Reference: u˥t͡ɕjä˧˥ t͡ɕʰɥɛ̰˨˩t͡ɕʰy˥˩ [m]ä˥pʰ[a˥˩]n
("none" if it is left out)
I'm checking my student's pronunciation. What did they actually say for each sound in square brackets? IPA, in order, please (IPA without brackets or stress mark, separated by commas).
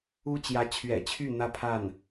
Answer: n̪, a˥˩